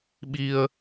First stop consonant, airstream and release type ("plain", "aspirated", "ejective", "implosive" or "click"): implosive